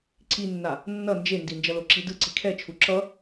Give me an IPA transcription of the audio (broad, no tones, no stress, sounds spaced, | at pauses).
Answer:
ǀ i nː a | nː ʌ n d͡ʒ e n d i n d͡ʒ ʌ l o ǁ i d ɯ ǀ i kʰ ɛ t͡ʃʰ u ǁ ʌ